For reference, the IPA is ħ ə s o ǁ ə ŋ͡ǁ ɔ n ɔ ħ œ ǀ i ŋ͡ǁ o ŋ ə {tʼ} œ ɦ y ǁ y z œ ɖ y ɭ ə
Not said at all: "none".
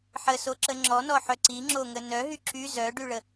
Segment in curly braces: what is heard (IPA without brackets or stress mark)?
n